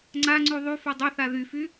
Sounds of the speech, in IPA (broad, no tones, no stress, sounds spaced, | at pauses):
ŋ͡ǀ a ŋ͡ǀ y ðˤ y f œ dˤ ø θ a ð y f y